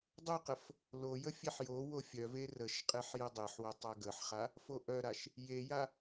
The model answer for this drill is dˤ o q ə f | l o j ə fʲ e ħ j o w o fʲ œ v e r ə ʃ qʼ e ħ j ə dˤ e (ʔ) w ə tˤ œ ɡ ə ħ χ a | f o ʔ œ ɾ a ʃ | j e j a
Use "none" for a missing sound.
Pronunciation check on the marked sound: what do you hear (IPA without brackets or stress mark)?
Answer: ħ